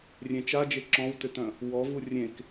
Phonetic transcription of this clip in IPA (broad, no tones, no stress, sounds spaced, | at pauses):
rʲ ẽ t͡ʃ a d͡ʒ e ǁ ɔ̃ w t ʏ t œ̃ | w ɔ v u rʲ ẽ k